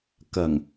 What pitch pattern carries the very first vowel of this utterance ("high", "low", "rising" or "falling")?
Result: low